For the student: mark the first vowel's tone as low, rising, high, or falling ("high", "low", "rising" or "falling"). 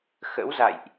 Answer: rising